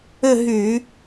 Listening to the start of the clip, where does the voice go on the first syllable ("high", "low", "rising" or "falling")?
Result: falling